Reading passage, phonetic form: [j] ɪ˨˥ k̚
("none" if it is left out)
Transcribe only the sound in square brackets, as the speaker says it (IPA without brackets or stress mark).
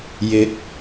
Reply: j